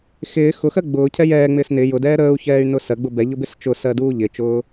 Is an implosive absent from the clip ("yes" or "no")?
yes